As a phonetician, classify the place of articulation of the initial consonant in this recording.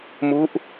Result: labial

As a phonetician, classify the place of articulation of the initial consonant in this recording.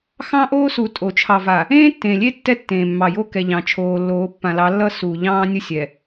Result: velar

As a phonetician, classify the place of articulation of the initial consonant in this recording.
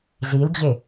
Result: alveolar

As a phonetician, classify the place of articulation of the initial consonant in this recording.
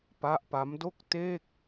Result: labial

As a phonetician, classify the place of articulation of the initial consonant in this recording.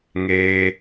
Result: velar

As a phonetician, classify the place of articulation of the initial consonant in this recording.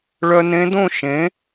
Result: retroflex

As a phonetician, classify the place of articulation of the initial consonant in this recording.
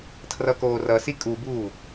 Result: alveolar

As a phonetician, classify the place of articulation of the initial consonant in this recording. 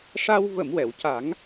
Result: retroflex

